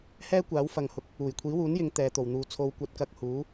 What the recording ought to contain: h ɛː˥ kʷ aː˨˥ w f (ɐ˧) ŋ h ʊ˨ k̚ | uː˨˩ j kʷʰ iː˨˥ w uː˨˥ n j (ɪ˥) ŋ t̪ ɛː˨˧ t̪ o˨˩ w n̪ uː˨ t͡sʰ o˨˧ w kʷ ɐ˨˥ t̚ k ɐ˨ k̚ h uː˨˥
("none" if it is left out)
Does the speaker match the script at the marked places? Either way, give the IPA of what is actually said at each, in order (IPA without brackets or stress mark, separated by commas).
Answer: ɐ˨, ɪ˨˧